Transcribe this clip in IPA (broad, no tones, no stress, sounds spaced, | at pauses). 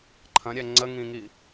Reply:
ǃʰ ɐ̃ ɾʲ ɛ ŋ͡ǀ ə ŋ ĩ ŋ i